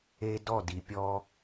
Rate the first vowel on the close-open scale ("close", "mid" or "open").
mid